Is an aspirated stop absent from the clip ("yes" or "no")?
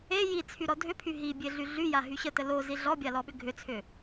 no